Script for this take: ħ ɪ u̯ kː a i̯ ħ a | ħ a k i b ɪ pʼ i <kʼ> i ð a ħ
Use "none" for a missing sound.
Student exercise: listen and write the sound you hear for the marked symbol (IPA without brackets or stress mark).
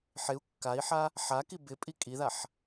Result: kʼ